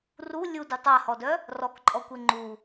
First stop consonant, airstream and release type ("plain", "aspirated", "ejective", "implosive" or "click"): plain